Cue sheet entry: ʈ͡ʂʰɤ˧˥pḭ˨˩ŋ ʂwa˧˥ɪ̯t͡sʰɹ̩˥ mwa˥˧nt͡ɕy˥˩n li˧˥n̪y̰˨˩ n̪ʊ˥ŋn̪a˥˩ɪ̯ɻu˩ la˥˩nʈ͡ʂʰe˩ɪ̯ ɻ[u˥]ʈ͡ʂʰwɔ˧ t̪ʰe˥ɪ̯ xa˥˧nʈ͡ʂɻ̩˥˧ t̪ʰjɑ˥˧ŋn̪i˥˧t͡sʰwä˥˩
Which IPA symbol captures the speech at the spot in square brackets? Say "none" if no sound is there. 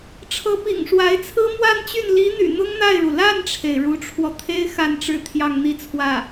u˧˥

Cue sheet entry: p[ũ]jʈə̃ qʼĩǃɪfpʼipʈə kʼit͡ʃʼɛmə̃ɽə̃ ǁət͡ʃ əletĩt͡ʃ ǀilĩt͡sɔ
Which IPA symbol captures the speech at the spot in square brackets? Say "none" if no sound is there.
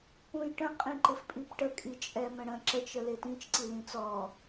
ũ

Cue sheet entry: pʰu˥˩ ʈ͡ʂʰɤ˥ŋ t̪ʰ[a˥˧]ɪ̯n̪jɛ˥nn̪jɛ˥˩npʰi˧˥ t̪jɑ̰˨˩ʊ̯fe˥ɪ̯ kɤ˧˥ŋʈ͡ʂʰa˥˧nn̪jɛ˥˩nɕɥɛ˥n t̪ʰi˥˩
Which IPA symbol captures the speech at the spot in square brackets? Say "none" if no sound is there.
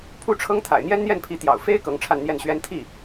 a̰˨˩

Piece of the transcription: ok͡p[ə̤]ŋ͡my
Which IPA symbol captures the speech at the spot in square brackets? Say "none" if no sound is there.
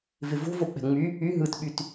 ɛ̤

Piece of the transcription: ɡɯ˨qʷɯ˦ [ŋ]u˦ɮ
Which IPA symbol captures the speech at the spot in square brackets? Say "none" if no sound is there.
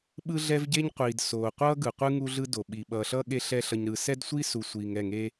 ŋ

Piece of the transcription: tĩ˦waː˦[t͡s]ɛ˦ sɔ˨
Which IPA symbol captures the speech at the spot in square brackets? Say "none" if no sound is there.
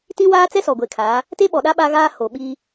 t͡s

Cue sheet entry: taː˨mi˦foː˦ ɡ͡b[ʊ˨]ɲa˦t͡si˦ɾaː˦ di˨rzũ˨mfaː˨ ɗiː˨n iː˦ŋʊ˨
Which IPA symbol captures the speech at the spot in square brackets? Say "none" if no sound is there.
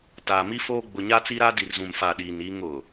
ʊ˨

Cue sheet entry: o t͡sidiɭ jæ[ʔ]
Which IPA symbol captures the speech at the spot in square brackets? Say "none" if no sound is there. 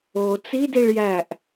ʔ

